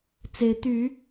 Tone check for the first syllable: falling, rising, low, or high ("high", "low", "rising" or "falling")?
rising